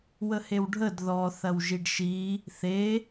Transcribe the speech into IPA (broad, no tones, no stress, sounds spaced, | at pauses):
w ə h e w ɖʱ ə d ð ɔ θ ɐ w ʒ i ɖ ʃ i | θ e